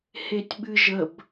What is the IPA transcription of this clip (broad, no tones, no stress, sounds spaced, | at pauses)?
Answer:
h e tʲ ɓ ɨ ʒ ə b